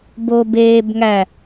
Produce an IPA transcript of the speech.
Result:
b o b eː b ŋ æ

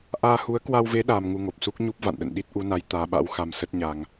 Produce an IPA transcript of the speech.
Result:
ʔ aː˧ h u˨˦ ə̯ k w a˧ w v e˨˦ ɗ aː˧ m ŋ u˧ ŋ o˨˩ p̚ s u˦˥ k̚ ɲ u˦˥ p̚ v a̰˧˨ n ɗ ə̰˧˨ n ɗ i˦˥ t̚ ʔ u˨˦ n a˨˦ j t̪ aː˨˦ ɓ a̰˧˥ w x a˧ m s ə˦˥ t̚ ɲ a˧ ŋ

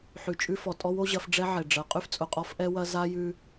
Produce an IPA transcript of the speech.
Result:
ħ ʉ˨ t͡ʃʼ ʉ˦ f ɔ˨ tʼ ɔ˦ w o˦ ʑ ɐ˨˦ f ɖ͡ʐ ɛ˦ ʕ ɛ˨ ɖ͡ʐ ɐ˨˦ qʼ ʉ˦ f t͡sʼ ʊ˨ qʼ ɔ˦ f ʔ ɛ˦ w ɐ˦ z a˦ j ʉ˦

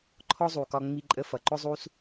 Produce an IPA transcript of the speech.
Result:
ǃʰ ɔ˥ zˤ u˩ k ɒ˧ ŋ͡m i˧ ǃʼ ə˧ f ʌ˩ ǃ ʊ˥ zˤ u˥ s

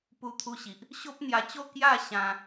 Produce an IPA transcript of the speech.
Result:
p u˧ t̪ʰ u˧ ɕ i˨ ʔ | ɕ o˦ p̚ n̪ j a˧ t͡ɕ o˥˧ k j a˥˧ ɕ ã˧

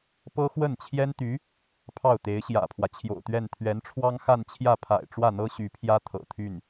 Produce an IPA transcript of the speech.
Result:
p ɤ˥ x w ə˥˩ n t͡ɕʰ j ɛ˥ n t̪ y˧˥ | pʰ ɑ˥˩ ʊ̯ t̪ e˧˥ ɪ̯ ɕ j ä̰˨˩ pʰ w ä˦ t͡ɕʰ j o̰˨˩ ʊ̯ t̪ ɥ ɛ˥˩ n t̪ʰ ɥ ɛ˧˥ n ʈ͡ʂʰ w ɑ˥ ŋ x a˥˧ n t͡ɕʰ j ä˥˩ pʰ a̰˨˩ ɪ̯ ʈ͡ʂ w ä˥˩ n̪ ɤ˥ ɕ y˧˥ pʰ j ä˥ t̪ʰ ɤ̰˨˩ t̪ʰ y˥˩ n

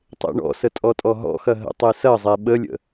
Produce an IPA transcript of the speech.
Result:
tˤ ḛ ɳ ɔ̰ s ə tʼ ɔ tʼ ɔ ɦ ɔ̰ x ɐ ɦ ə̰ tˤ e s ɐ zˤ e ɓ ə lʲ ə̰

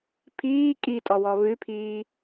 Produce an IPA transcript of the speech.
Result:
pʰ iː kʼ i tʼ ɔ w ɔ β ʉ pʰ iː

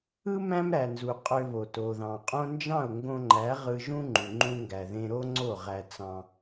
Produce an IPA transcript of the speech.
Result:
ɯ˦ m æ̃˦ m ɾ æ˨ n z u˨ qʼ ø˧ β o˨ t o˨ ð ɑ̃˨ qʼ õ˦ n d͡ʒ ɑ̃˦˨ ʊ̯ ŋ ɡ õ˧ ŋ͡ǃ æ˨˦ ʁ ɯ˧ ʒ ũ˦ ŋ͡ǃ u˨ ŋ͡ǃ ũ˧ ŋ ɡ æ˨ ð ẽ˧ ɾ o˦ ŋ͡ǀ o˦˨ ʁ æ˧ t͡s ɑ̃˧

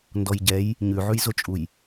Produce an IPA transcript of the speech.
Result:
n d ɔ j ɟ ɛ j | ɲ ʉ ʕ ʉ j z o t͡ʃʼ u j

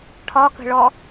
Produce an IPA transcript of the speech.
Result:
ʈʰ ɒ k ə̤ ɭ ɔ

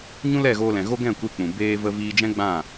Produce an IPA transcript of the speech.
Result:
ɲ ũ˦ l ɛ˦˨ ɣ oː˧ l ɛ̃˨ ɣ o˦ ɡ ɛ̃˦˨ kʷ e˧ k͡p ũ˨ b eː˧ v ə˧ v iː˧ d͡ʒ ɛ̃˦ ɡ͡b ã˦˨

